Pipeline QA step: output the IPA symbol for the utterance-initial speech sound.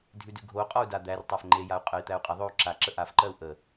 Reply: dʱ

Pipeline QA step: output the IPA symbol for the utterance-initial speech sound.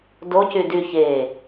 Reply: d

